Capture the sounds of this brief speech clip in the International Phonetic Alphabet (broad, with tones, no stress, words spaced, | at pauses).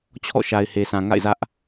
t͡ɕʰɔ̰˦˨ʃa˨ɪ̯he˨sʰã˨ ŋa̰˦˨ɪ̯zä˦ʔ